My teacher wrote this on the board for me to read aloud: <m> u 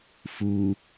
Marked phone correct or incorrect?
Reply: incorrect